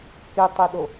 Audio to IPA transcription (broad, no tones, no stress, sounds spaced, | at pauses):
k e tˤ ɛ ɗ o